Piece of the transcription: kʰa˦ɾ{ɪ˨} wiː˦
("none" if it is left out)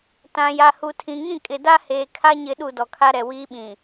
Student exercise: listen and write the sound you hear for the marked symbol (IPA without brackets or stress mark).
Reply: ɛ˨